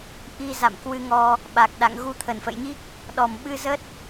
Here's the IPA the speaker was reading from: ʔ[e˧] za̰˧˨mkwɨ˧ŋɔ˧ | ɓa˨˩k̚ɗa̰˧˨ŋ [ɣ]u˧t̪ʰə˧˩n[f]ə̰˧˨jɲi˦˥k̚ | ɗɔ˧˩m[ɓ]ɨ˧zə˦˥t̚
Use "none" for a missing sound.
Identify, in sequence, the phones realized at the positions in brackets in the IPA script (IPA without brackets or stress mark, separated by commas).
i˧, ɣ, f, ɓ